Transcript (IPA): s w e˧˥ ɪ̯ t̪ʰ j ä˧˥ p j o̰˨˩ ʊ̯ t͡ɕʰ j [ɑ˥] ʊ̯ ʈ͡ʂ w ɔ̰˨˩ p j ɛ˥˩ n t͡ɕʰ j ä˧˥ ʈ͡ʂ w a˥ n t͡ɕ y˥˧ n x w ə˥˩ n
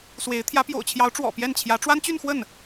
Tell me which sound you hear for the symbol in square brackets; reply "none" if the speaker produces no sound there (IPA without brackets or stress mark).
ɑ˧˥